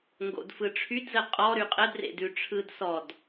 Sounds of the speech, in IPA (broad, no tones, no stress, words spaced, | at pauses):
ŋɡo̰dfɯʈ͡ʂʰydzə qʼɔɾy qʼədrḛdʉʈ͡ʂʰɯd sɔd